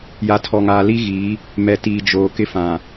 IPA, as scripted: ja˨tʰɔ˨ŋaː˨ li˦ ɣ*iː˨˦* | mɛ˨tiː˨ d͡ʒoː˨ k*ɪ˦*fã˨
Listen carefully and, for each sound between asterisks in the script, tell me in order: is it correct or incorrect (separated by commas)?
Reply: correct, correct